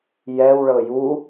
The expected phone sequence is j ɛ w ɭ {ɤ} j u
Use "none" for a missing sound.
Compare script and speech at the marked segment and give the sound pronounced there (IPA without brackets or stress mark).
ɤ